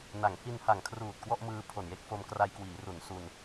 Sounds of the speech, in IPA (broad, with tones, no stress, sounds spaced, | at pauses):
n a˩˦ ŋ h i˧ n h a˨˩ ŋ kʰ r uː˨˩ t̚ k w ɔ˥˩ ʔ m ɯː˧ pʰ o˨˩ n j e˥˩ k̚ f o˧ m k r a˧ j k w iː˩˦ r u˩˦ n s u˧ n